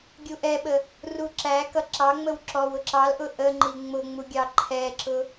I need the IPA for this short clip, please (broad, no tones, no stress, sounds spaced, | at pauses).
ɡʲ u ʔ ɛ ɓ ə | r u ǁ æ k ʌ ǁ ɑ ŋ͡m ə w ǁ ɔ w ʊ ǁ ɑ l ʔ ʊ ʔ ə ŋ͡ǃ i ŋ͡m ʊ ŋ͡m u ɡʲ ɑ ǃʰ ɛ ǁ ʊ